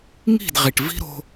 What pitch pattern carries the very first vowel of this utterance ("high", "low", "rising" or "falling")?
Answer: falling